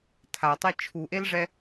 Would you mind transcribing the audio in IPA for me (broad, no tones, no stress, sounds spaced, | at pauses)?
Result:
tʰ a tˤ e t͡ʃʰ u ʔ e l ʐ ɛ